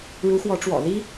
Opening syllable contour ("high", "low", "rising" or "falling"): rising